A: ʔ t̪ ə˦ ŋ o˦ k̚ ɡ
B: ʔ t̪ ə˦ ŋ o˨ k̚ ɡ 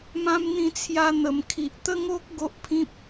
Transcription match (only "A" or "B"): A